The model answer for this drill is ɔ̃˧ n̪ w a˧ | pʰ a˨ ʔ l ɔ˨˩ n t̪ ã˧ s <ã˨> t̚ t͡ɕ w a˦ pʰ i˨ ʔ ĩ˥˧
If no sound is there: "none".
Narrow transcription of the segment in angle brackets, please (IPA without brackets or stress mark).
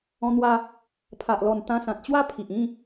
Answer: ã˨